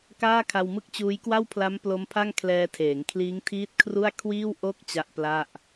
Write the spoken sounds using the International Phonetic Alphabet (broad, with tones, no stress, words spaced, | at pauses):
kaː˥˩kʰa˧wmɯ˥˩k̚t͡ɕuː˦˥j kwa˥˩wpʰla˦˥m plo˦˥mpʰa˥˩ŋkʰlɛː˧ tʰeː˩˦ŋkʰliː˦˥ŋtʰiː˦˥t̚kʰru˥˩a̯ kʰwiː˥˩w ʔo˥˩k̚ t͡ɕa˦˥ʔpla˥˩ʔ